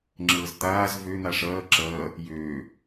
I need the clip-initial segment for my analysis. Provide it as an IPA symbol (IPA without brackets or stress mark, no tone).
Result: ŋ͡ǁ